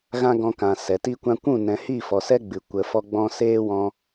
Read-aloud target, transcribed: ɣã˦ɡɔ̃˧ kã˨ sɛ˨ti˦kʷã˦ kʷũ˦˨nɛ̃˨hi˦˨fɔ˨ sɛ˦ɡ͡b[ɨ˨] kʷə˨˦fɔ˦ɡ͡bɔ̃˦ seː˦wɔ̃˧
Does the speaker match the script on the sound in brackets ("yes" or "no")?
yes